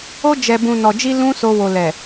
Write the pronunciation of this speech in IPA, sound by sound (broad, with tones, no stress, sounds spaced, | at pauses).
o˧ d͡ʒ ɛ˨ b ũ˨ n ɔ˨ d͡ʒ i˧ l ũ˦ s o˧ w o˨ l ɛ˨